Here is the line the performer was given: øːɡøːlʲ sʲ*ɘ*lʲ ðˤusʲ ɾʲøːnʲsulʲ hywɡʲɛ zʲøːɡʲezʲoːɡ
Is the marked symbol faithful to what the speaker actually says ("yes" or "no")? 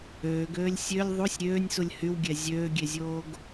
no